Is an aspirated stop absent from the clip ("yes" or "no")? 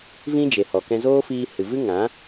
yes